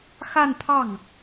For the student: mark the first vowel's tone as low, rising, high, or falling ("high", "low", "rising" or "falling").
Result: falling